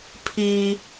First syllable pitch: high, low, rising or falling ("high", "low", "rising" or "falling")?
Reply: high